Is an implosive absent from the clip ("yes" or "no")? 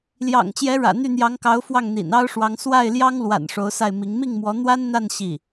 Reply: yes